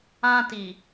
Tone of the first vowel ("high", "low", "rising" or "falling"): high